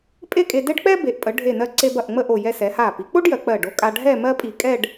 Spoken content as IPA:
pʼ e˥˧ kʼ e˧ d ɛ˥ ɖ k͡p ɛ˥ b e˩˧ ʔ pʼ ə˩˧ ɖʱ e˧˩ n ɜ˧ ǀ e˧ b ɐ˧˩ ʔ ŋ͡m ə˥˧ ʔ o˧˩ j ɛ˧ s ɛ˩˧ h a˧˩ p i˩˧ k͡p o˥ ɖ j ɜ˩˧ k͡p ɜ˧˩ ɖ o˧ kʼ a˧ ɖʱ ɛ˥˧ m ɜ˥ pʼ i˧˩ kʼ ɛ˥˧ ɖ

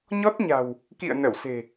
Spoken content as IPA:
ɲ ɔ˦˥ t̚ ɲ a̤˨˩ w | k ḭ˧˨ ə̯ n ə˧˩ w s e̤˨˩

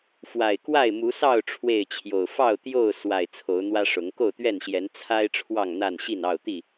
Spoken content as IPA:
f w a˨˩ ɪ̯ k w a˥˨ ɪ̯ m u˨˦ s ɑ˥˨ ʊ̯ ʈ͡ʂʰ w e˥˨ ɪ̯ t͡ɕʰ j o˨˩ ʊ̯ f ɑ˥˨ ʊ̯ t̪ j o˥˨ ʊ̯ s w a˨˩ ɪ̯ t͡sʰ o˨˦ ʊ̯ n̪ w ä˦ ʂ ʊ˨˦ ŋ k o˥˨ ʊ̯ t̪ ɥ ɛ˥˨ n ɕ j ɛ˨˦ n t͡sʰ a˦ ɪ̯ ʈ͡ʂʰ w ɑ˥˨ ŋ n̪ a˥˨ n ɕ i˥˨ n ɑ˥˨ ʊ̯ t̪ i˥˨

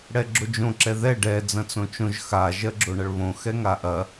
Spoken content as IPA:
ɽ ɛ ɡ͡ǁ o d͡ʒ õ ǁ ɛ ð ɛ ɖ ɛ d͡z ɐ̃ t͡s õ t͡ʃ õ ʒ x a ʒ ɜ ɡ͡ǁ o ɳ ɐ ɭ β õ x ɛ ŋ a ʔ ɐ

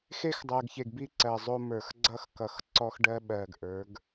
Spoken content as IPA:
x e˦ x dˤ ɜ˨ ɡ ç e˨ ɡ b i˦ ǀ ɜ˨ zˤ o˦ m ə˞˨ x ɡ͡ǀ ʌ˦ x k ʌ˨ x ǀ ɔ˦ x ɖ ɜ˦ ɓ ɜ˨ ɡ ʔ ə˞˨˦ ɡ

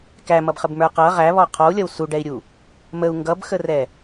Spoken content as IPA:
k æ m ʌ b χ ə b m ə˞ q ʌ ʁ æ β ɔ qʰ ɔ u̯ lʲ ʌ w s u ɖ ɛ i̯ ɾʲ u | m ə u̯ ŋ ɡ ʌ b x ə r ɛ

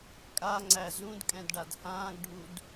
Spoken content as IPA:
kʼ a ŋ͡ǀ æ z ũ d kʼ ɛ̃ d ɖ a d h ãː ɡ ɖʱ u d

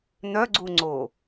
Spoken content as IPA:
n̪ œ ɡ͡ǀ u ŋ͡ǀ o

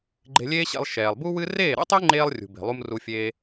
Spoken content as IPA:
ɡ͡ǃ e̤˧ lʲ eː˦ ɕ ḛ˧ lˠ ʃ ɛː˨ lˠ b u˦ w ɨ˦ r eː˦˨ ɾ ɛ̰˦ tˤ e˦ ŋ͡ǃ eː˧ lˠ rʲ ṳ˨ b e̤˨ lˠ u˧ m r u˧ fʲ eː˧

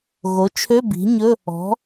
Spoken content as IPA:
ɣ o˩˥ t͡ʃʰ ø˧˥˧ b i̤˩˥ ɲ ɵ˧˥˧ | ɔ̤˩˥

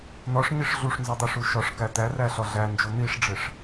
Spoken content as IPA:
n̪ ɒ ʂ ɲ i ʂ ɮ u ʂ n z ɒ dˤ e ʂ u ʃ ɒ ʂ k æ t̪ æ r æ ɬ ɒ ɮ æ n d͡ʒ o n̪ i ʂ ɖ͡ʐ e ʂ

